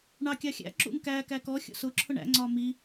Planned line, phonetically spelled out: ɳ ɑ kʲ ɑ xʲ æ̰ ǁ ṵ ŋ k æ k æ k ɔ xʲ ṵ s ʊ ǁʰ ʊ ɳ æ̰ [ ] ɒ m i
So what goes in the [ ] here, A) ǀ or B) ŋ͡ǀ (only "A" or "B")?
B